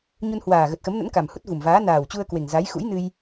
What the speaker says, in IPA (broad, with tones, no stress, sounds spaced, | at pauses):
ɲ u˧ n h w aː˨˩ ɣ ə˨˩ t̚ x ə˨˦ m n ə̰˧˥ n k a˨˩ m h u˦˥ t̚ v u˨˩ m v aː˨˦ n aː˨˩ w t͡ɕ u˧ ə̯ k w e˨˩ ŋ z a˨˦ j x ṵ˧˥ j n ɨ˧ j